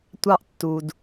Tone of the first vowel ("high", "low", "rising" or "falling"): high